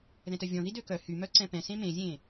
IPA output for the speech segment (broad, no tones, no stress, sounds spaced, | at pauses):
ð ɛ̃ t œ vʲ ɔ̃ ð i d ø k œ h y m œ ǀ ɛ̃ p ɛ̃ s ẽ m ẽ zʲ ẽ